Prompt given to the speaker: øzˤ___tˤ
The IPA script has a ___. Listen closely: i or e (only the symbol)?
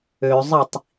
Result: i